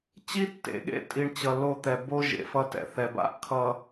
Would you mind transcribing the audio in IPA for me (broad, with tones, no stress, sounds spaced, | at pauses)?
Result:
t͡ɕ i˦ tː ḛ˨˦ ɠ ḛ˦ tʼ i˨ ɳ t͡ɕ ʌ˨ l o˦˨ t̪ ɛ˨ b o˦ ʒ ḛ˨ f ʌ˦ t ɛ̰˨ θ ɛ˨ b a̰˦ ʔ kʰ ʌ˨